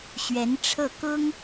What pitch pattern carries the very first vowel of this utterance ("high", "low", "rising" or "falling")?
rising